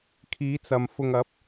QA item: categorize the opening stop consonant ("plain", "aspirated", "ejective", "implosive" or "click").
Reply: aspirated